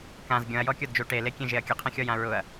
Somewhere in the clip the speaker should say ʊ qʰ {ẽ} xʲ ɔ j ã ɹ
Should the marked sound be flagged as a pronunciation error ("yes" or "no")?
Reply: no